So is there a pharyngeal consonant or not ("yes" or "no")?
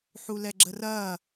yes